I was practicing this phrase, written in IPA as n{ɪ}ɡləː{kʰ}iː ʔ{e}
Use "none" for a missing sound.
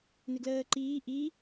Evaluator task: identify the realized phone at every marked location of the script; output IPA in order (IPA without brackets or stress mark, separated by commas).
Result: ɪ, ǃ, i